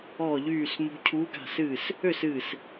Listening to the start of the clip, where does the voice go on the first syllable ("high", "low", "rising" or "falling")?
falling